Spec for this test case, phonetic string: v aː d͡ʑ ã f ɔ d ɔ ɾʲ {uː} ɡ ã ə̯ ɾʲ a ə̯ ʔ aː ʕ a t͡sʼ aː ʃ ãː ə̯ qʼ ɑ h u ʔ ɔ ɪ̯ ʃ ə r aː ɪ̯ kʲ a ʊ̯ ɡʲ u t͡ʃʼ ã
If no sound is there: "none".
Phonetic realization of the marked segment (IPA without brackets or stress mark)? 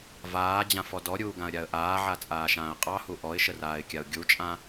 uː